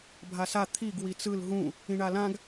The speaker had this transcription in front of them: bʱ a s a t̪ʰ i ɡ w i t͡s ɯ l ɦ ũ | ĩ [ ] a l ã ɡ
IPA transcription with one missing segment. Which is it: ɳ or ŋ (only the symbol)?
ɳ